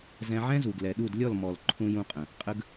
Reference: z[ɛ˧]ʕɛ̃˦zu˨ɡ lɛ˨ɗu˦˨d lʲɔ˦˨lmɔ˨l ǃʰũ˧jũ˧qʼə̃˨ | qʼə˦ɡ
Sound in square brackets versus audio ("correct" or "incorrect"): incorrect